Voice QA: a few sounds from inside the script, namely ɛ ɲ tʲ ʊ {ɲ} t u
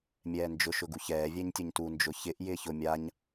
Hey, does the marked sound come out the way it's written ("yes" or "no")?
yes